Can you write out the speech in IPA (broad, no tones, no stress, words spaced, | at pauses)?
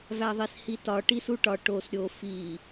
væðˤishitɒ ʈisuʈɒ ʈos ɾʲo fi